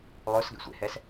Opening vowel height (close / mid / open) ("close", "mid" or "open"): mid